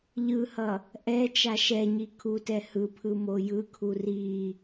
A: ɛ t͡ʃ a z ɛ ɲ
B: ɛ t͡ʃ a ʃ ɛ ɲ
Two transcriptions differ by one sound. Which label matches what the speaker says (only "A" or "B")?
B